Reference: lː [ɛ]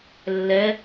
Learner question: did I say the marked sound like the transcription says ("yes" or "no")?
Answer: yes